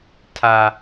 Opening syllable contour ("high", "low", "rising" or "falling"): high